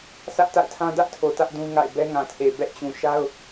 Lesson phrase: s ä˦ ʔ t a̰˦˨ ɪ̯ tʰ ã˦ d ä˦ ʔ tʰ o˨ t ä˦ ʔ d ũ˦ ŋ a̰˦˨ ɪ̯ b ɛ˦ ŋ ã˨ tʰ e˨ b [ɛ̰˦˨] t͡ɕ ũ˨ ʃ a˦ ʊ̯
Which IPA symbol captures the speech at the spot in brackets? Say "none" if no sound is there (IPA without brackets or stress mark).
ɛ̰˦˨